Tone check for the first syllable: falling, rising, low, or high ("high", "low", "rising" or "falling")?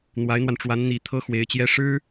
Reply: rising